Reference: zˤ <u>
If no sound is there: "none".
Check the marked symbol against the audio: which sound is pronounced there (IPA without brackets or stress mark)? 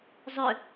ʏ